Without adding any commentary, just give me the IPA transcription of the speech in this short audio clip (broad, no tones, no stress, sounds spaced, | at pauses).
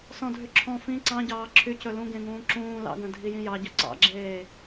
s ɔ̃ dʱ y ǁʰ ɔ̃ f ĩ ǀ ɑ̃ ɟ ɑː ǁʰ y c ɵ l ũ ɡ ẽ ŋ ũː ǁ ũː l ɑ̰ ɡ œ̃ dʱ i j ĩ j ɑ ɟ œ ǀ ɑ̰ ɡ͡ǁ eː